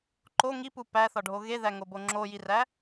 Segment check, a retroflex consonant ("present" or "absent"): present